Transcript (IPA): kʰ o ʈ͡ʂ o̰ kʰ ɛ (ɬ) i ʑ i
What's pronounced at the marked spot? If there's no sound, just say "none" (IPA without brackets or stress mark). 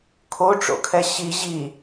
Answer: ɕ